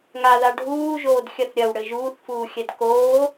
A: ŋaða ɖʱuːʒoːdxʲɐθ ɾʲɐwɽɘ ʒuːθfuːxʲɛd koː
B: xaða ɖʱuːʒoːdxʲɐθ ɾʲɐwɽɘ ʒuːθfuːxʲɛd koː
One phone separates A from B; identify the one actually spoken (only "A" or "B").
A